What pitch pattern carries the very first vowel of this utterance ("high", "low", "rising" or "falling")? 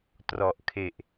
low